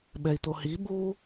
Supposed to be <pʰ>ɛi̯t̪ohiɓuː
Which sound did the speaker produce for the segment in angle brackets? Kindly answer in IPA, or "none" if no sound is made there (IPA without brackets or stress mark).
ɓ